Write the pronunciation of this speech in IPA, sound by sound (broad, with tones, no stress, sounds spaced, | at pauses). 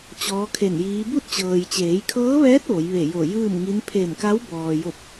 t͡ɕ ɔː˧˥ kʰ e˧˩ n j iː˧˥ b u˥˨ t̚ t͡ɕ ɤː˩ j t͡ɕ eː˩˧ j kʰ ɤː˧˥ ʋ ɛː˧˥ t̚ ʋ o˩˧ j ʋ e˧˩ j o˧˩ j ɯː˥˨ m ŋ i˧˥ n pʰ e˧˩ m k a˧˥ w b ɔː˩ j o˧˩ p̚